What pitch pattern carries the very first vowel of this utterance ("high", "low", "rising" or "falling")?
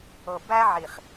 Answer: low